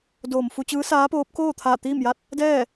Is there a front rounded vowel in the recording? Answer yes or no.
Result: no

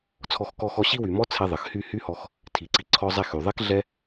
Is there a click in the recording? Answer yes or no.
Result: yes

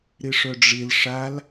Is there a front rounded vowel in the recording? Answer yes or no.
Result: yes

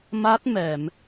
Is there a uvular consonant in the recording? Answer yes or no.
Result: no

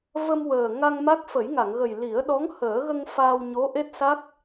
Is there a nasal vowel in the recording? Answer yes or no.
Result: no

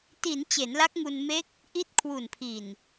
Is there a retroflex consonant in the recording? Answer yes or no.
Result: no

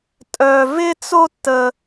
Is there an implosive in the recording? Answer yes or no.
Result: no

